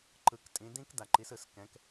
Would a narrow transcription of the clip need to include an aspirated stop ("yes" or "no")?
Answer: no